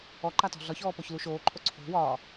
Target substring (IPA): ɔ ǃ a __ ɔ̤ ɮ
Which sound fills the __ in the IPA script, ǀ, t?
t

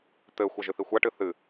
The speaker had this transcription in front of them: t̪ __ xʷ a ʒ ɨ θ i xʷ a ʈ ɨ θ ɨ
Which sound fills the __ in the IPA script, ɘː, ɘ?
ɘː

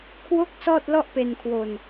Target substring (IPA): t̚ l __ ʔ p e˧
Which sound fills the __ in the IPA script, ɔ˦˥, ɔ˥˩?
ɔ˥˩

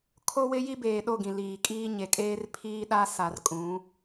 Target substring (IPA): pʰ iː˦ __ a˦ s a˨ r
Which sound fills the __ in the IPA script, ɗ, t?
ɗ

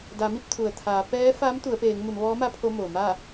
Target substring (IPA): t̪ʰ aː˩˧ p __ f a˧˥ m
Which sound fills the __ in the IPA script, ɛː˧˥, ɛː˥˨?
ɛː˧˥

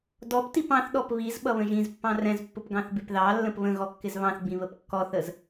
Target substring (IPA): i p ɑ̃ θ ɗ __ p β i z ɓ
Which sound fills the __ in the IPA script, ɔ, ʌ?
ɔ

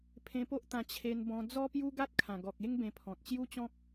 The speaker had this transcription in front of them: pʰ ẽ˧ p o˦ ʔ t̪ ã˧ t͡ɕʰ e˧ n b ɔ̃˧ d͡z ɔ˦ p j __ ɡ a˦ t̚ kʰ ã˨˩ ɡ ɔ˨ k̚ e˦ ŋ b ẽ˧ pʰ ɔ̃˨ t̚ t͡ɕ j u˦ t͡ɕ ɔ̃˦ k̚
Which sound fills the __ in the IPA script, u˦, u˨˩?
u˦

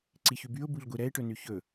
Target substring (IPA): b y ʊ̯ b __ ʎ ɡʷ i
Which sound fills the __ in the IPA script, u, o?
u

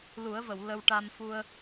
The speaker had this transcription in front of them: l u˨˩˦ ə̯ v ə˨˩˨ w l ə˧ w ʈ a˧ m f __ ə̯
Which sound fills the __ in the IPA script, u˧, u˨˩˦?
u˧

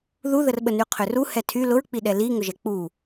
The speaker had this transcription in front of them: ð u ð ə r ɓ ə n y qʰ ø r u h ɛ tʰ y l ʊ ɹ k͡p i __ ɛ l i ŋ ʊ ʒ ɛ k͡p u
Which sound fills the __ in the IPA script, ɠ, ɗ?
ɗ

